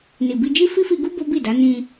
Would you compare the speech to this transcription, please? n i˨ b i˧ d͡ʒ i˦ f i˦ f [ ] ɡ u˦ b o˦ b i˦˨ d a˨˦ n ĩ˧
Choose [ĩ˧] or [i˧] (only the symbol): i˧